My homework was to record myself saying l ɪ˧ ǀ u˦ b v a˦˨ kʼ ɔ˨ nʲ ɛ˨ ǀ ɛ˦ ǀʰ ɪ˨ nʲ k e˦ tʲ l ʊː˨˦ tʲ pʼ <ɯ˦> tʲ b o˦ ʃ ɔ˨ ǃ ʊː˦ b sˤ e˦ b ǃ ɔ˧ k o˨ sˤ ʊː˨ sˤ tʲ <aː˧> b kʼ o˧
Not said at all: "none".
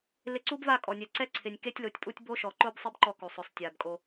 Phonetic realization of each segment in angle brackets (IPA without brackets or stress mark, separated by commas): u˦, aː˨